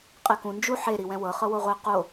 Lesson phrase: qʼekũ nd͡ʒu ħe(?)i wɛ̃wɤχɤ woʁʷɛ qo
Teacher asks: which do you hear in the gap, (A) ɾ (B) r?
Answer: A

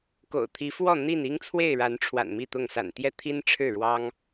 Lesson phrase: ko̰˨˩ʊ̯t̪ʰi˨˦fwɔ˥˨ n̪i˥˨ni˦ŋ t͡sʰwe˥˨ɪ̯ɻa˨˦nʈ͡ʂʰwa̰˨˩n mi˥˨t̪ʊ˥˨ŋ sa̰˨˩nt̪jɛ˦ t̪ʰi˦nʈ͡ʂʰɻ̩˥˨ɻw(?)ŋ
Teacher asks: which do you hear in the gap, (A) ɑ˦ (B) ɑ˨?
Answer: A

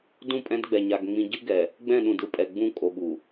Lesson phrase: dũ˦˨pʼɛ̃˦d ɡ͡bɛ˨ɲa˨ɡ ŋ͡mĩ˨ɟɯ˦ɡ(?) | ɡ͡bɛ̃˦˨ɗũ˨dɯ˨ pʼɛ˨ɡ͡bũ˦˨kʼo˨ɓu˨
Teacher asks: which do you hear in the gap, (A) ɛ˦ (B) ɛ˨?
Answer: B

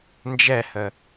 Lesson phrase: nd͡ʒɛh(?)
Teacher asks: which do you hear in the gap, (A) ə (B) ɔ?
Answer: A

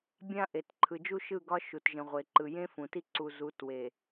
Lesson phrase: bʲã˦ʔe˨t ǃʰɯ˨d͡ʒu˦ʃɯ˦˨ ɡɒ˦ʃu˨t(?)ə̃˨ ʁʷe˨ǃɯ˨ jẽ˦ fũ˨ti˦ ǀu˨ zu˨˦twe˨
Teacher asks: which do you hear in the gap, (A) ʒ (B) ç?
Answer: A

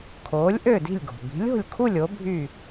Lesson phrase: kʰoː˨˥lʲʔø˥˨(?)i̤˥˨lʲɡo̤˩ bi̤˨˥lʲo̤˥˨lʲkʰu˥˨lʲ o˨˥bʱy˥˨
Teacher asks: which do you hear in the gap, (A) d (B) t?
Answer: A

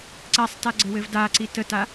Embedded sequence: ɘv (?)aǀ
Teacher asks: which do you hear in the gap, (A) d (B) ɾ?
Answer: A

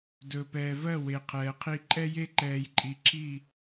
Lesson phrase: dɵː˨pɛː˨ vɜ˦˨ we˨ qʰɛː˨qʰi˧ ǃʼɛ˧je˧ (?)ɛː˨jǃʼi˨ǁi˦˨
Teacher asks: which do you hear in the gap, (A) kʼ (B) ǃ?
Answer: B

